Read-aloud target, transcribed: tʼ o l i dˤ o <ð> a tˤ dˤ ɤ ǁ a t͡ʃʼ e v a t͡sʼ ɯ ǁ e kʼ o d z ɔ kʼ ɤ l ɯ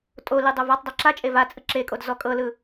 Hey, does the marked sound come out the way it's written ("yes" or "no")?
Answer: no